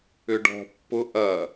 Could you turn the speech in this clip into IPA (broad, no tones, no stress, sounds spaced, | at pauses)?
ʏ ɖ ɔ̤ pː ʊ ʔ ɐ